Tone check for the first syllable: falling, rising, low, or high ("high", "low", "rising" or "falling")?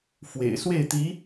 low